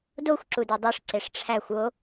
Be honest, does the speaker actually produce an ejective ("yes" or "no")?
no